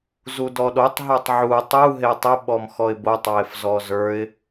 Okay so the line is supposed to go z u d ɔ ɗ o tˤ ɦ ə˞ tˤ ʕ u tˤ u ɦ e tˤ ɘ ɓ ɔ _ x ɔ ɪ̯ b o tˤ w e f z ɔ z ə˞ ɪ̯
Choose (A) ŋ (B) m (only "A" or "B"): B